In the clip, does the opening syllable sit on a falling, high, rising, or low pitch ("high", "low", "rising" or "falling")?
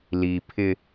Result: low